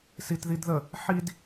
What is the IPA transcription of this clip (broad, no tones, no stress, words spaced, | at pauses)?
sitðidðə | ħid